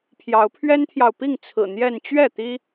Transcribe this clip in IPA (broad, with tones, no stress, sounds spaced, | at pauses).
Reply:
pʰ j ɑ˨˦ ʊ̯ pʰ ɥ ɛ˦ n t̪ʰ j ɑ˨ ʊ̯ p i˥˨ ŋ t͡sʰ ɹ̩˨˩ n̪ j ɛ˥˨ n t͡ɕ ɥ ɛ˥˨ t̪ i˦